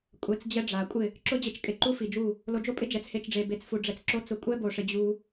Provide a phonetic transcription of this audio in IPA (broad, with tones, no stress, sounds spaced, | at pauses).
kʷʼ ɛ˧ t͡s d͡ʑ ɛ˦ ɖ͡ʐ a˨ kʷʼ ɪ˦˨ | ǁ ʊ˦ d͡ʑ e˧ t͡ʃ kʼ ɪ˨˦ ǃ u˦ f i˨ d͡ʒ u˦˨ | l o˧ d͡ʒ o˦ pʼ ɪ˦ d͡ʒ ɛ˨˦ t͡s h e˦ t͡ʃ ɖ͡ʐ e˧ b e˦ t͡s f u˧ ɖ͡ʐ ɛ˧ t͡s ǁ o˦ t͡s ʊ˧ kʷʼ ɛ˦ b o˧ ʂ ɪ˧ d͡ʑ u˧